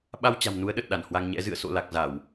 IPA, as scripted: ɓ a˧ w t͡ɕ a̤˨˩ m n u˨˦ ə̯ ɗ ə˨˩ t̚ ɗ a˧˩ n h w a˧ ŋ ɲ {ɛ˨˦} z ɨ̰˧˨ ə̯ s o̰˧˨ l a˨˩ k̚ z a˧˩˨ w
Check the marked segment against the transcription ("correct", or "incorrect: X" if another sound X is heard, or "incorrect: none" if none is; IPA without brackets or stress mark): incorrect: ɛ̰˧˥